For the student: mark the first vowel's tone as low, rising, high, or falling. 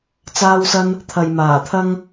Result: high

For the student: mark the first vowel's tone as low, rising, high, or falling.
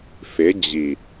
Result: rising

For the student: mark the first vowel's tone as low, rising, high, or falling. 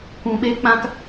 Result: low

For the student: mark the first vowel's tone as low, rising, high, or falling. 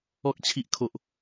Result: high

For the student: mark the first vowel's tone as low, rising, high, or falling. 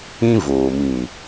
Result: high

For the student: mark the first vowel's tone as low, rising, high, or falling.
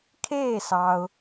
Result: falling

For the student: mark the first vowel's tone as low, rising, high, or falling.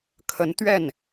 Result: rising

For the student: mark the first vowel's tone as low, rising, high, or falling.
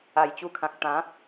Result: low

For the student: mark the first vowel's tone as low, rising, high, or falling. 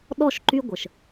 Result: falling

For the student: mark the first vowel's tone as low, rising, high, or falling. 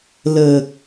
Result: low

